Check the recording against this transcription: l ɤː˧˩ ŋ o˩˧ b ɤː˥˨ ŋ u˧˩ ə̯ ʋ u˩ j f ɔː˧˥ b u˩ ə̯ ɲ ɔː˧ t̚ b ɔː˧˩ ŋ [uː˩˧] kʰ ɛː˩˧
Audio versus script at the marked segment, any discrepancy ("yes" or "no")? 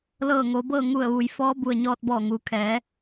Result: no